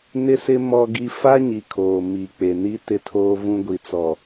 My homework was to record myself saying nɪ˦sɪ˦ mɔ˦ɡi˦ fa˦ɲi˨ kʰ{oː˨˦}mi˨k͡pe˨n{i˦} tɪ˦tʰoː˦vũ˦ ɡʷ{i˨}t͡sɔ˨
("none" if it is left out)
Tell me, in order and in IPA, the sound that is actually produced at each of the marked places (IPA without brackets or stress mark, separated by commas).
oː˨, i˦, i˨